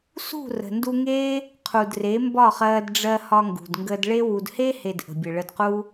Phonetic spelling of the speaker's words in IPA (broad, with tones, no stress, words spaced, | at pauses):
sṳ˦˨ rə̤˨ndu˧ŋeː˦ | qʰu˨dre˨˦mbɒ˦˨χɜː˧d ɖ͡ʐɜ˧ hɒ˧ŋɡṳ˨dŋɡəː˧dɭe˦ wu˨dhe˦he˨d ʔə̤˨bʲə˨ ɭə˧dquː˦